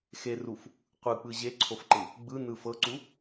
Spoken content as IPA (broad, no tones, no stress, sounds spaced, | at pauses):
x e r u f | qʷ ɯ k͡p ɯ ʑ e ǀʰ o f ǃ ɯ | ɡ͡b ɯ n ɯ f ɤ ǀ u